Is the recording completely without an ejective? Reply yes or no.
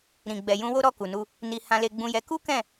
yes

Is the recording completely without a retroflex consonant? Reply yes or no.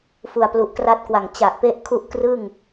yes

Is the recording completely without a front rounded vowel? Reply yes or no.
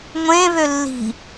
no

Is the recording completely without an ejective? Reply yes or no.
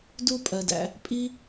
no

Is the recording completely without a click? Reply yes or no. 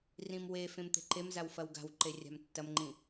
no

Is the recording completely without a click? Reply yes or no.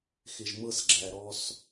no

